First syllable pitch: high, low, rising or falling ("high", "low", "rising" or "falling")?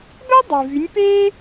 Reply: high